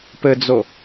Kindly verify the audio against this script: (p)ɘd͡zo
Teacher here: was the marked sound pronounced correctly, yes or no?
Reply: yes